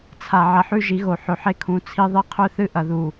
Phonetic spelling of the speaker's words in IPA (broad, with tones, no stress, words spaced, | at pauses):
t͡sʰa˨ ʕɐ˨ħʉ˦ʒi˨˦ɣo˨ ħɵ˨ħe˦kʰũ˨˦ t͡sʰi˦ðˤi˦ qʰɵ˦θɨ˦ ʔɐ˨ðu˨